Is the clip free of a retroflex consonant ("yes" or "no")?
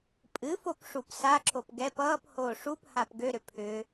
no